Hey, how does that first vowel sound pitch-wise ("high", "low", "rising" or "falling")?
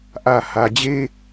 low